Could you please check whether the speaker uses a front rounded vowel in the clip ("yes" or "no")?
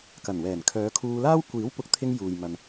yes